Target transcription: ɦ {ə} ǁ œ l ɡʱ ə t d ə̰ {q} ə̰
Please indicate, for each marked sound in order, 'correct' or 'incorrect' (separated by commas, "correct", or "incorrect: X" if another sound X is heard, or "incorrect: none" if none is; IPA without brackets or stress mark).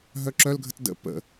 incorrect: œ, incorrect: p